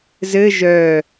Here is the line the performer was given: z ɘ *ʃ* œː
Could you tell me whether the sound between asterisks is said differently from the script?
yes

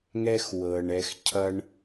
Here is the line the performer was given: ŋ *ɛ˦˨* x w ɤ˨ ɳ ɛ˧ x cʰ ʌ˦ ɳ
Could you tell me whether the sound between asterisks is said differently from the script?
yes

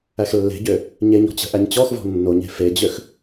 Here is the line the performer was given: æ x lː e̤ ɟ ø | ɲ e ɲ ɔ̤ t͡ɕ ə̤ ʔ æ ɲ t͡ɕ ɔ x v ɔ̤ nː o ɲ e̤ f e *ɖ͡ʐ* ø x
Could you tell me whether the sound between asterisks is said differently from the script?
yes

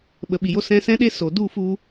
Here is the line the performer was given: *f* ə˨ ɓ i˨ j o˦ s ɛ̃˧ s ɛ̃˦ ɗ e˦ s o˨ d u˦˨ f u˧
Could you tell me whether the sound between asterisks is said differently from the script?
yes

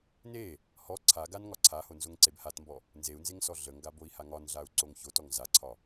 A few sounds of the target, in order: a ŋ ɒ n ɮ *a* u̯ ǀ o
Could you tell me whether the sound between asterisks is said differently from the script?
no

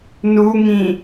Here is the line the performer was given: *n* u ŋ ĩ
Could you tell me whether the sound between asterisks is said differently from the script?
no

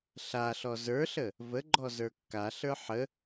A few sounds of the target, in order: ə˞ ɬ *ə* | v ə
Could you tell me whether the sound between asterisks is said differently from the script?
no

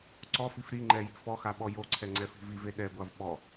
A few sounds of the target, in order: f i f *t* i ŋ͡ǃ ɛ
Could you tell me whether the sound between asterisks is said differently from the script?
yes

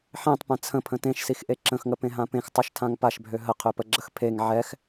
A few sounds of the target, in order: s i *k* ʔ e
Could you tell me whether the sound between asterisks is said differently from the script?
yes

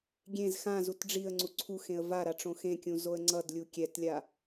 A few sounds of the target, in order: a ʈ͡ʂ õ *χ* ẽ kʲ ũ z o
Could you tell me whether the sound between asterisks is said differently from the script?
yes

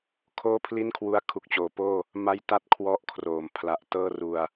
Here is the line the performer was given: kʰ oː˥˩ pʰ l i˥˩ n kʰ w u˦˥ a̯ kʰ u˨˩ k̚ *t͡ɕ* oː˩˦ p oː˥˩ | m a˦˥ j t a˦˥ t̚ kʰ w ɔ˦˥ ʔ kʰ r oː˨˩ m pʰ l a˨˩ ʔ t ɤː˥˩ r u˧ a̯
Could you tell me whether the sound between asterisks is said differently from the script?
no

